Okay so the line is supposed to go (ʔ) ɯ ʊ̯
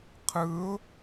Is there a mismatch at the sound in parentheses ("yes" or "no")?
yes